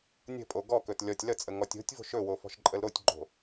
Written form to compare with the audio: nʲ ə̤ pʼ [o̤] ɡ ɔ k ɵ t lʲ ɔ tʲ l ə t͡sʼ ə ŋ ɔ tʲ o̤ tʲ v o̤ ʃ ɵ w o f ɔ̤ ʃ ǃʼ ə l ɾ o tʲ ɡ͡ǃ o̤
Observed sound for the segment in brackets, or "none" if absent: o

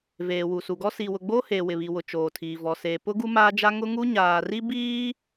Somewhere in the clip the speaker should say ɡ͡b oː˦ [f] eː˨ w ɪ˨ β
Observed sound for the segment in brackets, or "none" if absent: h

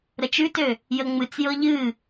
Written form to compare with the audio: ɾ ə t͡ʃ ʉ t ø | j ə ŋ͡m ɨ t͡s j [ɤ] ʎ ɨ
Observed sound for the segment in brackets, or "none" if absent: ɤ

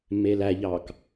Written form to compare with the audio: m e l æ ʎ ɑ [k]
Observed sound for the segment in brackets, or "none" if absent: k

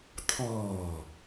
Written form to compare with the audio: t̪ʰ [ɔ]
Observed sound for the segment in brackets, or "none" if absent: ɔː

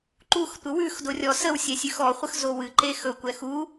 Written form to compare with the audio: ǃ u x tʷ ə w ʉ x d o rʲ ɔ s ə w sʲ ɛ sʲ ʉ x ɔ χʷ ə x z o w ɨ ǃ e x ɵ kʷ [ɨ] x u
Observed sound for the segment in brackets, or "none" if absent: ɛ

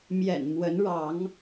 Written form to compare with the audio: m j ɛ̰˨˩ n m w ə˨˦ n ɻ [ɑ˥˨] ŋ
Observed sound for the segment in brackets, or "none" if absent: ɑ˨˦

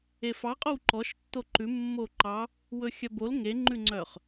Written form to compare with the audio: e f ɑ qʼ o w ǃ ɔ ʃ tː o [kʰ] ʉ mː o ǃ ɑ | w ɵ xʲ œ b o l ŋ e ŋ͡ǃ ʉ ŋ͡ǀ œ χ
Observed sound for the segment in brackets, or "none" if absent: ǃ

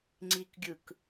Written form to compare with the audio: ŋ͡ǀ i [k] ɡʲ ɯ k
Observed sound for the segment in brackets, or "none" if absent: k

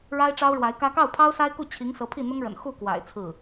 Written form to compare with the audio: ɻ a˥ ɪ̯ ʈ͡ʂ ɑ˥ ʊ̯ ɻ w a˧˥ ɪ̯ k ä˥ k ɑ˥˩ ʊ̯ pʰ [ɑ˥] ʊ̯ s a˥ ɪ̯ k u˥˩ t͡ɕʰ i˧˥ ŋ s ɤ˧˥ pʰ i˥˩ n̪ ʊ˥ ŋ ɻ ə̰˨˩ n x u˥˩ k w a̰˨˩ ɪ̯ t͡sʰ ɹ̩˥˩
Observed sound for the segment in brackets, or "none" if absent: ɑ˥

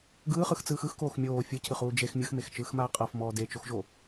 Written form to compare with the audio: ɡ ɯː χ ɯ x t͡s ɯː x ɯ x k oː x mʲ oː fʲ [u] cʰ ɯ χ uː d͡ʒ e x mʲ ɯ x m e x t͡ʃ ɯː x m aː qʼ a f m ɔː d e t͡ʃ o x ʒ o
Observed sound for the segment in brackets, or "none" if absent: ɯ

